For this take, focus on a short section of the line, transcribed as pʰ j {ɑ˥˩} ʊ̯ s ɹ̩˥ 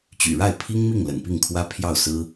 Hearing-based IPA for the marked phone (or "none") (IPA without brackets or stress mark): ɑ˥˩